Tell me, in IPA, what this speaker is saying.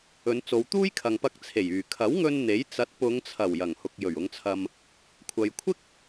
ɵ˨˧ n t͡s o˨˧ w t̪ uː˥ j kʰ ɐ˨ ŋ p ɐ˧ k̚ t͡sʰ e˨˩ j yː˨˩ kʰ ɐ˨˥ w ŋ ɵ˧ n n̪ e˨˥ j t͡s ɐ˨˥ t̚ p ʊ˨˧ ŋ t͡sʰ ɐ˨˩ w j ɐ˨˩ ŋ h ʊ˨ k̚ j ɵ˨˩ ɥ ʊ˨˧ ŋ t͡sʰ ɐ˧ m | kʷʰ ɐ˨ j kʷʰ ɪ˥ k̚

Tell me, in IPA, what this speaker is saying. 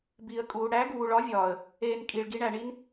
b iː˨ ə̯ kʼ uː˨ ɽ æ˨˦ ɡ uː˨ ɭ ɒ˨˦ vʲ ɒː˨ ə̯ | eː˧ n kʼ i˨ ɭ ɡ i˨˦ ɳ æ˨ ɳ i˦ n

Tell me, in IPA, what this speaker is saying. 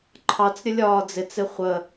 ǃʰ ɑ t͡s ɾʲ ə lʲ ɒː d͡z ɪ t͡s ɪ χʷ ə

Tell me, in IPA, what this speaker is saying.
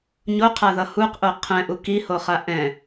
ɲ o qʰ a ð ʌ h u q ʔ o qʰ ɛ̃ ʔ u k i h o χ a ʔ ɛ̃

